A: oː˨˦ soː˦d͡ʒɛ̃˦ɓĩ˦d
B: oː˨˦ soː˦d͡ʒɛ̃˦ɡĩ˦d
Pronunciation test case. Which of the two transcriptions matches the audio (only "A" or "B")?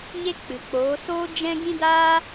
B